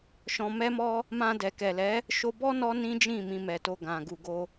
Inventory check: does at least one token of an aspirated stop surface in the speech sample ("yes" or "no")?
no